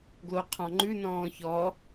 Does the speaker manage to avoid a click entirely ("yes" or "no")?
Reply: no